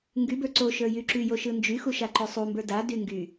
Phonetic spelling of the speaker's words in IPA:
ŋ ɡ y b ə˞ ǀ o ʃ ə˞ j y ǁ y j o ʃ ɯ n d͡ʒ y x u ʃ a ǃ o sˤ u m b ə˞ d a d y ŋ ɡ y

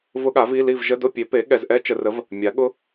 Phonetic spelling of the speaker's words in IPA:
v ʊ˦˥ ɠ a˩˥ v i˧˥˧ l i˥˨ v ʒ ə˧˥˧ d ʊ˥˨ pʲ e˩˥ p e˩˥ ɠ ɛ˨ z ʔ ɛ˦˥ t͡ʃ ə˨ r ə˩˥ v | mʲ a˩˥ ɠ ʊ˦˥

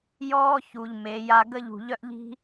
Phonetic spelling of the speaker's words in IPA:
j ɔː˦ ç u˨ ʎ m e˨˦ j a˦ ɡ ə˦ ʎ ṳ˨ ʎ œ˦ ʔ ʎ i̤˦

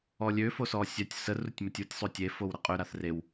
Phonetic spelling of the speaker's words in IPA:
ɔ lʲ ø f o s ɔ sʲ œ tʲ s ə r u tʲ m ə tʲ u tʲ sˤ o tʲ e f o w ɾ ə qʼ ø ɾ a θ r e w

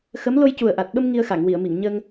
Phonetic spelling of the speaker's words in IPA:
x ə˧˥ m l o˧ j c u˨˩ ə̯ ʔ a˨˩ t̚ ɓ ə˧ m ŋ i˧ ə̯ x a˨˩˨ ŋ w i˨˩˨ ə̯ m i˨˩˨ ŋ ɲ ə˧ ŋ

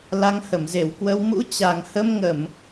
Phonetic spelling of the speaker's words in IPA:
l a˧ ŋ h ə˧˩ m z e˧˩ w k w ə˧ w m ṵ˧˥ t͡ɕ a˨˩ ŋ h ə˧ m ŋ ə˧˩˨ m

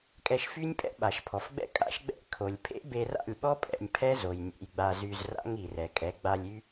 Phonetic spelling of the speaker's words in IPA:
kʼ ɛ˧ ʃ f y˦ nʲ pʼ ɛ̰˦ ɓ a˨ ʃ pʰ ɔ˨ f ɡ͡b ɛ̰˦ kʼ a̰˦ ʃ ɡ͡b ɛ̰˦ kʰ o˨ lʲ pʰ ḛ˦ b e˧ r a̰˦˨ lʲ ɓ ɔ˦ pʼ ɛ̰˧ nʲ pʰ ɛ˦ z o˨ j nʲ ḛ˧ j ɡ͡b a˧ z y˧ z r a̰˦ ŋ i˨ r ɛ˨ kʼ ɛ˨˦ ɡ͡b a˧ lʲ y˦

